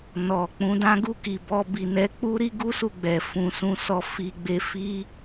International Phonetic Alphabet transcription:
n ɔ˨ k͡p ũ˨˦ d ã˦ ɡ u˦˨ k i˨ b ɔ˧ b i˨ n ɛ˨˦ k͡p u˦ ɾ i˦ ɡ u˦ s u˦˨ ɡ͡b ɛ˨ f ũ˨ s ũ˨ s ɔ˨ f i˨ ɡ͡b e˧ f i˦

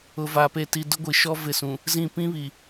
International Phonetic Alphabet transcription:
ʊ˨ v a˨ p e˨ t i˨ d ʊ˦ ɡʷ i˨ ʃ ɔ˦ v ɪ˦˨ s ũ˨ | z ĩ˦˨ p ĩ˦ β i˨

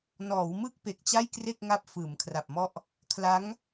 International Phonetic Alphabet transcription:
n ɔː˩˦ w m ɯ˥˩ k̚ p e˨˩ k̚ t͡ɕ a˥˩ j k r e˥˩ k̚ ŋ a˦˥ p̚ f ɯː˩˦ m kʰ r a˨˩ p̚ m ɔ˥˩ ʔ | kʰ l a˦˥ ŋ

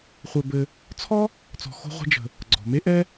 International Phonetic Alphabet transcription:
χʷ ɛ˧ b ɘ˧ | t͡sʰ ɔ˦ | t͡s ɔ̤˧ x o̤˦ ʁʷ e̤˦ d͡ʒ ə̤˧ | ɡ͡ǀ ɔ̤˨ m e˦ ʔ ɛ˦

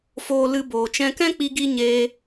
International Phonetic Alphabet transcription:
f oː˧ l ɨ˧ b oː˨ t͡ʃ ɛ̃˧ k ɛ̃˦ k͡p i˧ ɡ i˧ ɲ eː˧

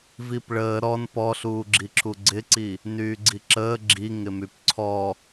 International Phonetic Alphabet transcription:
v i p ɭ əː ɾ ɔ n p ɔ ɬ uː ɡ͡ǁ i ǁʰ u ɡ͡ǀ ɪ ǀ i | n yː ɡ͡ǀ i ǁ əː ɡ͡ǁ i ŋ ɪ m y p ǀʰ ɔ

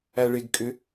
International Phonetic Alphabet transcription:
æ ɭ e ɡ kʼ ʏ

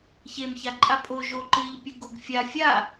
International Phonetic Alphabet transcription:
ç e m ç a ǃʼ a pʼ o ʒ o ǃ ɨ ʎ pʲ ɘ ɡ o ɡ fʲ a fʲ a

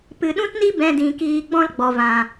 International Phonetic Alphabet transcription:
p ɨ˨ ɗ ũ˦ t n i˦ b ɛ̃˧ d ĩ˨ k iː˧ ɡ͡b ɔ̃˦ l ɡ͡b ɔ˨ v ã˨

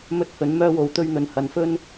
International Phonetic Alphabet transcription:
m ɵ˧ t̚ h ɵ˨˧ n m œː˧ w o˨˧ w t̪ ɵ˧ ɥ n̪ ɵ˨˧ n h ɐ˧ n f ɵ˥ n

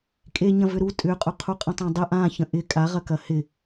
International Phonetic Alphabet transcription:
kʼ e ɲ ɐ̃ v ʏ ɾ u tʼ ʏ qʼ ʊ qʰ u qʼ ə̃ tˤ ã dˤ ə ʔ ã ç ə̃ ʔ ɪ kʼ a ʁ ɐ k ɐ h ɪ

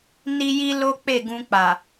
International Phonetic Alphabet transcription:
n i˦ j i˦ l o˦ k͡p e˦˨ ɡ ũ˧ k͡p a˨

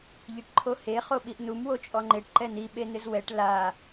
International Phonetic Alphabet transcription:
ʎ i ʈ ǃʰ o h e χ o ɓ i ʔ n u m w o t͡ʃʼ ɔ ŋ͡ǃ e ʈ ǃ ɛ n i ɓ e n̪ ɪ z w ɛ ʈ l a

